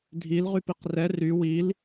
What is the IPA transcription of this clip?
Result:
dʱ i l ʁ y p i q r ɛ r y w i l

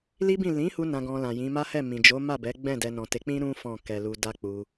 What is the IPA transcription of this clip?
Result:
l i˦ b ĩ˦˨ l ĩ˨˦ h u˧ n ã˧ ɡ ɔ̃˧ l ã˨ j ĩ˨˦ m a˦ h ɛ˦˨ m ĩ˨ d͡ʒ o˨˦ m a˦˨ b ɛ˨˦ ɡ͡b ɛ̃˦˨ d ɛ˧ n ɔ̃˨ t e˨˦ k͡p ĩ˦ ɾ ũ˦ f ɔ̃˦˨ k ɛ˧ l u˧ d a˦ k͡p u˧

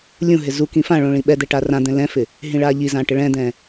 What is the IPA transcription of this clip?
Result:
lʲ ũ ɦ ɪ z u k ĩ f ã ɭ õ ɭ ĩ ɓ ɛ d̪ ɛ ʈ a r ã d̪ ɛ̃ l ɛ̃ f ɪ | ɦ ĩ ɭ a ʎ i z ã ʈ ɪ ɭ ɛ̃ d̪ ɛ̃

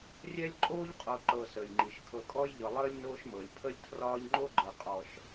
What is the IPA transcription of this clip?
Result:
rʲ ɛ˦ lʲ ǃʼ oː˦ ʎ qʼ o˨ ǃ ɤ˨ s əː˩ j ŋ͡ǃ i˩ ʃ kʰ ɤ˨ kʼ ɔ˦ j ʎ ɤ˨ lˠ əː˥ lʲ n oː˦ ʃ m ɤ˩ lʲ pʰ ə˦ lʲ tʰ r ɒː˦ ʎ ŋ͡ǃ o˥ ɡ͡ǃ ɤ˨ qʼ ɔ˨ ʃ

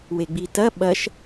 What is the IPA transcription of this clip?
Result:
w e ɡ͡b i t ɐ ɓ ɐ ʃ

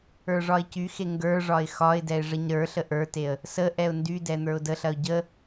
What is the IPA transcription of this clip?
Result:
ə˞ ʐ ɒ ɪ̯ c y x e ŋ ɡ ə˞ ʐ ɒ ɪ̯ x ɒ ɪ̯ d ɛ ɪ̯ ʐ ə ɲ ɾ ə˞ ɬ ə ʔ ə˞ t e ə̯ | s ə ʔ ɛ ʊ̯ n d y d ɛ n̪ ə˞ ʊ̯ d ə ɬ ɐ ʊ̯ ɟ ə

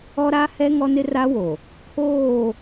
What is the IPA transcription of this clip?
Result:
ɔ˦ ɾ a˦ h ɛ˦ ŋ ɔ˦ n ɪ˦ r a˦ w o˨ | kʰ oː˦˨

